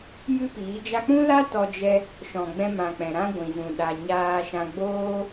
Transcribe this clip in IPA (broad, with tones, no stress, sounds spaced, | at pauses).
j ɨ˦ p iː˨˦ d͡ʒ a˧ k͡p ũ˦ l a˦ t ɔ˧ d͡ʒ ɛ˧ | ʃ ɔ̃˨ ɡ͡b ɛ̃˧ m ã˨ k͡p ɛ̃˨ ɾ ã˦ ɡʷ ĩ˨ z ũ˨ ɗ a˨ ɲ aː˧ ʃ ã˧ ɡ͡b oː˧